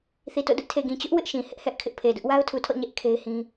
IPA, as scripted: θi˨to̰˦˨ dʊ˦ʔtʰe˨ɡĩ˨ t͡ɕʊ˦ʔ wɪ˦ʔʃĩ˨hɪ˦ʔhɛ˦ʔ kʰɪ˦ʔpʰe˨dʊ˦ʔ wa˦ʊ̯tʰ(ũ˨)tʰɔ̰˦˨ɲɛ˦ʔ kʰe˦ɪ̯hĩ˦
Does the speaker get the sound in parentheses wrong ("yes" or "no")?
yes